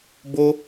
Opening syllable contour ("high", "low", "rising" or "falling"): high